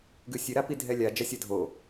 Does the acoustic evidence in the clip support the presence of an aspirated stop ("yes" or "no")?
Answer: no